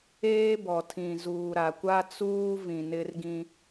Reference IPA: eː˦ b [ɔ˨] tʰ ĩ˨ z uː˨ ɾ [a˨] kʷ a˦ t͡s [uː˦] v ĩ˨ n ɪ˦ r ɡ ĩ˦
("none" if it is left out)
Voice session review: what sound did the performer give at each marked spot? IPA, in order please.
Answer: ɔ˨, a˨, uː˦

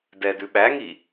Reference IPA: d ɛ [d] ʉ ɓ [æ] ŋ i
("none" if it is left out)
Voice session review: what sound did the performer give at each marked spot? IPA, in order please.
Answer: d, æ

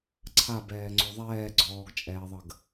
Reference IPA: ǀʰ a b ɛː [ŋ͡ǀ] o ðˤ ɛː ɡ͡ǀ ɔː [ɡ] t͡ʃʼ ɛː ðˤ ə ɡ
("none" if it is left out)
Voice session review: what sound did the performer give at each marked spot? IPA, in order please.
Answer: ŋ͡ǀ, ɡ

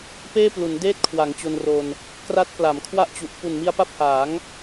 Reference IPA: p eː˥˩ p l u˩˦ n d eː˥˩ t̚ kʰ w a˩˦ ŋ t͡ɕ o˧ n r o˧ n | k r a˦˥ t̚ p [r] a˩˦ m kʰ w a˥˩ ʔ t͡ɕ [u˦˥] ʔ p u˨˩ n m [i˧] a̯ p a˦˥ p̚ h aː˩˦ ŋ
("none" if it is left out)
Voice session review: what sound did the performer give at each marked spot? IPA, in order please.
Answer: l, u˨˩, i˧

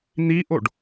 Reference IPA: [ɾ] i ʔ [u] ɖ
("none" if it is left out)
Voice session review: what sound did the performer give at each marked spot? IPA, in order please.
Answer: n̪, o

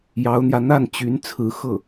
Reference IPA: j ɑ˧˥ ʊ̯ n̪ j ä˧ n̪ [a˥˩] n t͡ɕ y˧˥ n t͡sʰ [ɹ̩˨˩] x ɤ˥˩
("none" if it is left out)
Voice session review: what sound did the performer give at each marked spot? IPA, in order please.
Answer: a˥˩, ɹ̩˧˥

